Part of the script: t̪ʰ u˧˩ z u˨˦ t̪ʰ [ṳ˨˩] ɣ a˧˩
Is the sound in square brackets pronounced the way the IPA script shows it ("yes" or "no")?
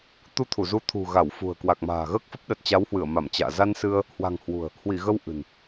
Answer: yes